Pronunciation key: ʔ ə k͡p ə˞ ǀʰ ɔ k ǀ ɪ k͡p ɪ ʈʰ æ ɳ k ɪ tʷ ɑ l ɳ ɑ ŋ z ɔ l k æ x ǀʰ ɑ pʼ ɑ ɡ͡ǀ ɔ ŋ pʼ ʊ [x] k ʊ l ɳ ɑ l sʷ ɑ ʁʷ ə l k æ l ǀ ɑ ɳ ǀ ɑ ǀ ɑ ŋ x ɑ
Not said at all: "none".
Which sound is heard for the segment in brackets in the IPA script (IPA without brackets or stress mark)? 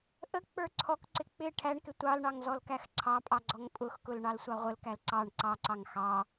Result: x